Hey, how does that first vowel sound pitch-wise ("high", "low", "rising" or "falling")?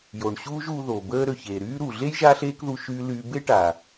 low